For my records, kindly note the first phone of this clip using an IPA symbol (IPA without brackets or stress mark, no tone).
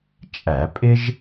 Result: t͡ʃʼ